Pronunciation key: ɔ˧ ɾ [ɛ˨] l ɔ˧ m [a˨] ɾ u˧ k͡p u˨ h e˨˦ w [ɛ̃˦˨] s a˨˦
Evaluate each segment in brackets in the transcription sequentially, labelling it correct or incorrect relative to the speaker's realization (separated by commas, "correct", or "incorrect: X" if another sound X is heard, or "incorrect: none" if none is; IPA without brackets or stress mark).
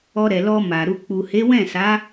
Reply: correct, correct, correct